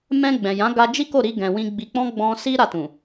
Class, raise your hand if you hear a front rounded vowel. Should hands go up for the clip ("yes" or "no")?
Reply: no